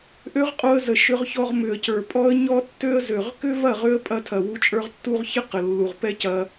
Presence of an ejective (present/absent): present